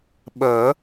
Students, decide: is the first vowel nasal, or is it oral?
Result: oral